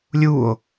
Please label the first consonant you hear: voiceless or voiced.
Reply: voiced